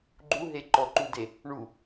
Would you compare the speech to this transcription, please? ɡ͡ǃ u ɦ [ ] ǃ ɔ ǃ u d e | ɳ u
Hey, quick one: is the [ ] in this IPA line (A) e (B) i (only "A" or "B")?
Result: A